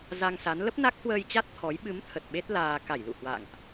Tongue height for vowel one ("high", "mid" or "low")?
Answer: low